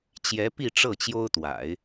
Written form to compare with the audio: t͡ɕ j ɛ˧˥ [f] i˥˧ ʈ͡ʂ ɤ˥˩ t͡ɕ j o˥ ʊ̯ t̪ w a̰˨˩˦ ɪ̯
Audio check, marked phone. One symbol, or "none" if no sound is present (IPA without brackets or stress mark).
p